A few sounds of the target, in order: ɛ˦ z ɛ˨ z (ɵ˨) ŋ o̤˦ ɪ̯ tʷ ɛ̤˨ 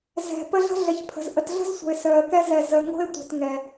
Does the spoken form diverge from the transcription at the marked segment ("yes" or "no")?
yes